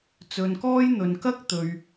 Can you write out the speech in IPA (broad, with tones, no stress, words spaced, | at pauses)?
t͡sɵ˨nkɔː˥j n̪ɵ˨nkɐ˥k̚ t̪ɵ˨ɥ